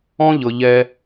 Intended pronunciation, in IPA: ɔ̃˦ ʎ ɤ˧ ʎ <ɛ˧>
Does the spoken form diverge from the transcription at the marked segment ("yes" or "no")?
no